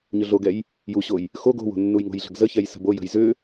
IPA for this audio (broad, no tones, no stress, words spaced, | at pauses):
ɲʏɮoɡɛj | juɕoj | xoɡ o̤wo̤ nːujŋo̤jɮə̤ɡ zəçɛj sə̤bojə̤j zʏ